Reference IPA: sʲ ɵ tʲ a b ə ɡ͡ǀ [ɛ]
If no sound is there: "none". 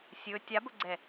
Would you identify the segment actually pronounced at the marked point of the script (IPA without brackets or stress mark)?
ɛ